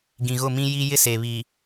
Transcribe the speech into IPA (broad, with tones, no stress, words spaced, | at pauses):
ɡĩ˨ɣʊ˦˨mĩ˦ji˦ jɪ˦se˨ βi˨